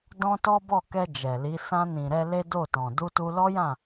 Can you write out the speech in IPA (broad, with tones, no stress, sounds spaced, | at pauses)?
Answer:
d ɔ̃˦ t ɔ˦ b ɔ˦˨ k ɛ˧ d͡ʒ ɛ˨ l i˨˦ s ã˧ n ĩ˨ ɾ ɛ˧ l e˦ d o˦˨ t ɔ̃˨ d u˧ t u˧ l ɔ˦ j ã˦˨